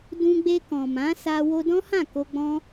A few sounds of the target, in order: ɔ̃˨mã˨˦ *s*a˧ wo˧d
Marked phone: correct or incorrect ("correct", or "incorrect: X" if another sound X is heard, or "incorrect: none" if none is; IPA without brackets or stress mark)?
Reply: correct